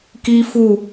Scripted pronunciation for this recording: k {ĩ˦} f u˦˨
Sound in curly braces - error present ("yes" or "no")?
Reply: yes